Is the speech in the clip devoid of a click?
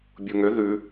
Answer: yes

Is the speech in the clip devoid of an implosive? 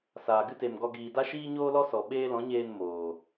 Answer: no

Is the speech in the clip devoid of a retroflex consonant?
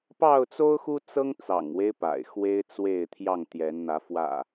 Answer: yes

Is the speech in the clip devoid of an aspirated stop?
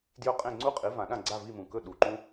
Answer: yes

